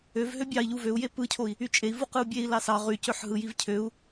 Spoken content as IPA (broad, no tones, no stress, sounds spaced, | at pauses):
ø v ɦ ø bʲ ɑ i̯ ʎ u v ø u̯ j e p ɯ cʰ o i̯ | y t͡ʃʼ e i̯ v u q ɯ u̯ bʲ e i̯ l ɑ s ɑ ʁ y c ø ħ ɦ ɯ j i v cʰ ø u̯